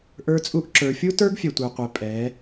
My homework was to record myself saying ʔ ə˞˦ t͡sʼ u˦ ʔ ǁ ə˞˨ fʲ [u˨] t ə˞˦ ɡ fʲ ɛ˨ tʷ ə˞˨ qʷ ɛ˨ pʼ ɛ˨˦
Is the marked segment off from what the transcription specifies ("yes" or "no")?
yes